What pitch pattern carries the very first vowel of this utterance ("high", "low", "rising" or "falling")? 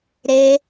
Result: high